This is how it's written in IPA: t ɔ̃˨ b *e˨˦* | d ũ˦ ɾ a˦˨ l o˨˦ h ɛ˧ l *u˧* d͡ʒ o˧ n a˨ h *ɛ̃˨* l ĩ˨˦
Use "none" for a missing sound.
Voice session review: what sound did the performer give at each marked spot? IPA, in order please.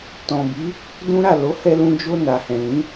i˨˦, ũ˧, ɛ̃˨

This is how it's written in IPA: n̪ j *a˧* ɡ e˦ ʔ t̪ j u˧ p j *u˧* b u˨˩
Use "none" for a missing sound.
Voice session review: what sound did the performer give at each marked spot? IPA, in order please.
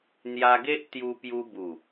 a˧, u˧

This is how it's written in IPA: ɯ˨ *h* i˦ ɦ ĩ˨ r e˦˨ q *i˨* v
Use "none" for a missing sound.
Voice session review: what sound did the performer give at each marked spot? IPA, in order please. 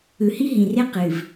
h, ɨ˨

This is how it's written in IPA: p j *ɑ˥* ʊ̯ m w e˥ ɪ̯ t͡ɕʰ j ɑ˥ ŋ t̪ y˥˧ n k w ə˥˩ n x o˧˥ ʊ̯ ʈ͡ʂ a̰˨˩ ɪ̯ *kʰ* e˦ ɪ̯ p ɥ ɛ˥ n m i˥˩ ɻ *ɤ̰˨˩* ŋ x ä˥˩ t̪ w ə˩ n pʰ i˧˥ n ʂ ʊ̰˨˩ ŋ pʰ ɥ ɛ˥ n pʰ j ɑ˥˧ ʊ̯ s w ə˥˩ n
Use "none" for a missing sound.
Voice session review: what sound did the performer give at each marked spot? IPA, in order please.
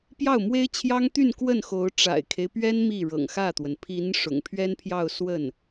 ɑ˥˩, kʰ, ɤ̰˨˩

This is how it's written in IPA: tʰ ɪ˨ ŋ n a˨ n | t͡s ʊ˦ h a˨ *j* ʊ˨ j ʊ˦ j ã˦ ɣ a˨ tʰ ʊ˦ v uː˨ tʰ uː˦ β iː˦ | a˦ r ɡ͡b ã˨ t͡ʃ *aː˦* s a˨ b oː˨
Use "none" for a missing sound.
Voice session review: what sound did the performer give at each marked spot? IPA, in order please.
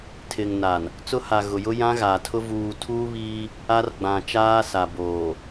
ɣ, aː˦

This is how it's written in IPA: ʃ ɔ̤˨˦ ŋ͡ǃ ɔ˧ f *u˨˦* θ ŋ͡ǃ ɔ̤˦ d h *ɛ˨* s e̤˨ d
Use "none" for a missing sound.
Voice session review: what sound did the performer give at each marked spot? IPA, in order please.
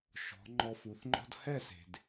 u˨˦, ɛ˦˨

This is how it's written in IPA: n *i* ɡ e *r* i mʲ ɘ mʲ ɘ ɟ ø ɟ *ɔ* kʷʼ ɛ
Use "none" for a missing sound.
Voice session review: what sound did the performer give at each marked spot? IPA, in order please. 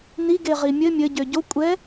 i, ʁ, o

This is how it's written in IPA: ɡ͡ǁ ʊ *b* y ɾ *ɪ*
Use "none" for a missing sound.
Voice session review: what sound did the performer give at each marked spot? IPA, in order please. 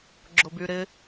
b, ɪ

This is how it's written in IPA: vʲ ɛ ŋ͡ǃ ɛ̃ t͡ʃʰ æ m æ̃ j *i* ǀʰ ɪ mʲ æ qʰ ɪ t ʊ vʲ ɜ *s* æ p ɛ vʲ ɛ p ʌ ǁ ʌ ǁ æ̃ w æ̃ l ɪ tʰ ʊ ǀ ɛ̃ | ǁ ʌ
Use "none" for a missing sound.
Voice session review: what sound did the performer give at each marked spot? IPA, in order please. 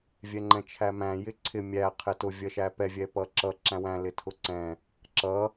ɪ, ʃ

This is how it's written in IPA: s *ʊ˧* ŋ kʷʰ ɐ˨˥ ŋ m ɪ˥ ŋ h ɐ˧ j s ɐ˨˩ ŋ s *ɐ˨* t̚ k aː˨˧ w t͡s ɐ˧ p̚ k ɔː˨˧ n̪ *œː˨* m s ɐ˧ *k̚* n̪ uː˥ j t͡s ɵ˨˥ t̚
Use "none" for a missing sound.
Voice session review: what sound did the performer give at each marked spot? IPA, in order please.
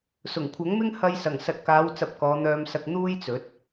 ʊ˨˩, ɐ˨, œː˧, k̚

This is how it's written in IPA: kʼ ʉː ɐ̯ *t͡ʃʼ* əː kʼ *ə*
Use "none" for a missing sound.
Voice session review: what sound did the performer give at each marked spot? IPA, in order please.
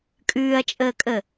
t͡ʃʼ, ə

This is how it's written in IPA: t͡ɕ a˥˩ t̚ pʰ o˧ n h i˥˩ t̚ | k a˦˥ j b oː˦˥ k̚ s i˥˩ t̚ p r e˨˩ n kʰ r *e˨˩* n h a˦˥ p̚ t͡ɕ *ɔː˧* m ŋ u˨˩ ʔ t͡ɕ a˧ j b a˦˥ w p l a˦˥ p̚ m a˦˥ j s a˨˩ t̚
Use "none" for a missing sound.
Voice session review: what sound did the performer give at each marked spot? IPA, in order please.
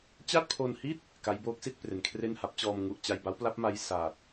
e˥˩, ɔː˧

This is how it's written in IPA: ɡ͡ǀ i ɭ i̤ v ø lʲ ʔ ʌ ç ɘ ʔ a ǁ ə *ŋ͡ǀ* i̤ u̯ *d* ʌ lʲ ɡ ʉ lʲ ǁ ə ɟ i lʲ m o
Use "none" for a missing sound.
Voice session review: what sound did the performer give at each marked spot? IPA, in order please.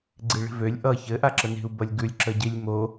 n, b

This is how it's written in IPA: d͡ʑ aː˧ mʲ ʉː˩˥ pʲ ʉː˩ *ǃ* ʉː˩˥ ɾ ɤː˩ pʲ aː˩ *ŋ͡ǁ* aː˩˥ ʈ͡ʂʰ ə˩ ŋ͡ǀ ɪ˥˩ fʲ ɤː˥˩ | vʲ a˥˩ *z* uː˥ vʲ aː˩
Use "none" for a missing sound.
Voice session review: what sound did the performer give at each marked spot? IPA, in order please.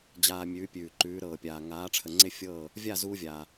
ǃ, ŋ, z

